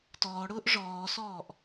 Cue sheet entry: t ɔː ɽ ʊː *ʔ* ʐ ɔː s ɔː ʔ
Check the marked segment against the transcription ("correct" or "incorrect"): correct